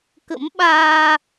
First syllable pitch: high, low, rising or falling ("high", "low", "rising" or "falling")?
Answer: rising